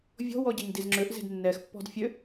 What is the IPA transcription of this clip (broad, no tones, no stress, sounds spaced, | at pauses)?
vʲ ɔ̤ w ɔ ɟ ɛ ɲ d i z ŋ͡ǁ ø ʔ z e̤ d nː ɛ x pː ɔ̤ d fʲ ø